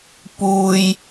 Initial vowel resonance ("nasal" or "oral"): oral